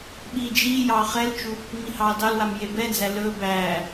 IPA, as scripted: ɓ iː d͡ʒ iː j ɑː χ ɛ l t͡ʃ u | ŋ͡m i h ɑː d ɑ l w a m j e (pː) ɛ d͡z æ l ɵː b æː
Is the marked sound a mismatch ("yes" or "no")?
yes